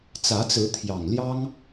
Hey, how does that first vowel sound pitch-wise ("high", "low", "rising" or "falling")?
rising